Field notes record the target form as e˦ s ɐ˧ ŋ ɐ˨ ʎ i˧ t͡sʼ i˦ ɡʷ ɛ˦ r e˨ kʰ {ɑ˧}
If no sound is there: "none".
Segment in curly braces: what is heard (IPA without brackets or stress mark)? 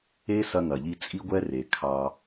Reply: ɑ˧